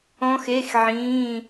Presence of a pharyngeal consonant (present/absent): present